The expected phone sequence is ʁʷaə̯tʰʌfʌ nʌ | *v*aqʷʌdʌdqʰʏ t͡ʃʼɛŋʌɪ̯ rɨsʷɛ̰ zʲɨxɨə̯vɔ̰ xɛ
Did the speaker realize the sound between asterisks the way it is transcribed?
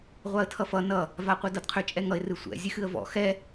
yes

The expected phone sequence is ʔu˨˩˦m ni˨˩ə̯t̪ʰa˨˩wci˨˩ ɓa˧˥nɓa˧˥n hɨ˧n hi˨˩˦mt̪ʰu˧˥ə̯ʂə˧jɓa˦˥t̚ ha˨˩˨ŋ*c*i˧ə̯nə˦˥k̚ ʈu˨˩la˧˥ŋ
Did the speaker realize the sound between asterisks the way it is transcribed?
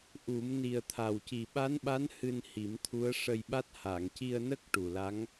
yes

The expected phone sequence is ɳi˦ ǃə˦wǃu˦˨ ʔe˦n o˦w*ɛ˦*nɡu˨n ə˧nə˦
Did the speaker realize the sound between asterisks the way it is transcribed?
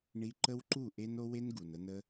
no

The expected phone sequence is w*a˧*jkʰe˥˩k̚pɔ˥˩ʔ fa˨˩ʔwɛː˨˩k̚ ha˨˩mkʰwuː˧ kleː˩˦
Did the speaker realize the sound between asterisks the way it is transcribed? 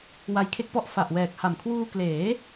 yes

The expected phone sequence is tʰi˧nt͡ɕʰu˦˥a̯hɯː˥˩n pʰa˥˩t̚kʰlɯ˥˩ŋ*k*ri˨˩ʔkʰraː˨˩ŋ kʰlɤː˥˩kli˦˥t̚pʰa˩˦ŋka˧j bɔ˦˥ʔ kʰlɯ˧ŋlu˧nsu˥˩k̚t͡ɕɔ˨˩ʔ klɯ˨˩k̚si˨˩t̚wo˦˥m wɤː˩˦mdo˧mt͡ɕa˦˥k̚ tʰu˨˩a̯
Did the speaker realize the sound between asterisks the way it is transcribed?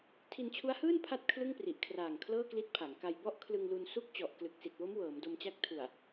no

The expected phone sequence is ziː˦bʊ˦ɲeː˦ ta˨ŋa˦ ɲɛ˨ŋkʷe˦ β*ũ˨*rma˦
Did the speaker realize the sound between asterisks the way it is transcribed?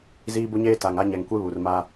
no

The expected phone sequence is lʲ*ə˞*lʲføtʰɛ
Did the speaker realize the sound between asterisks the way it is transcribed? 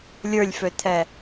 yes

